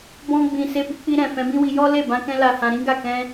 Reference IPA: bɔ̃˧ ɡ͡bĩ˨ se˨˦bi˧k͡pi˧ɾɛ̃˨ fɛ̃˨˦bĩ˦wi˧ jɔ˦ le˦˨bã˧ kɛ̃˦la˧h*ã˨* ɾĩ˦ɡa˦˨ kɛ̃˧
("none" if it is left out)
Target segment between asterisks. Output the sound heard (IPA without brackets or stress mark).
ã˧